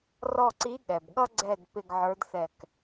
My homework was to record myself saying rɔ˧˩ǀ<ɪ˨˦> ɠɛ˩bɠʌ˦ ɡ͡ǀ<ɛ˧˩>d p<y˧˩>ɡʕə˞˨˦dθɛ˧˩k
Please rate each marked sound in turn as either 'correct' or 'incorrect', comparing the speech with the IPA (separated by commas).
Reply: incorrect, correct, incorrect